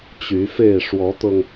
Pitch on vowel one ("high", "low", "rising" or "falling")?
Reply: rising